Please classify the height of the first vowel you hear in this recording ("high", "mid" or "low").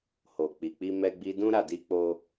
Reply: mid